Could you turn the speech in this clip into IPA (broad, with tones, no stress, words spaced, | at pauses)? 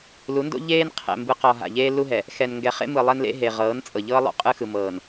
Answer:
lu˨˦ndo̰˦ ʎeː˦n qʰɛ̰˨ mbɯ˨qɔ˨ ɦa̰˨ʎeː˦lu˦ɦɛ˨ | xɛ˨n ŋɡɛ˨χḛ˦mɯ˨ lˠɛ˦nlḛ˦ ɦe˨ ʁɤː˨˦nt͡sʼɤ˨ʎɤː˦ lˠo̰˦qʼɯ˦xɯ˨mɤː˨n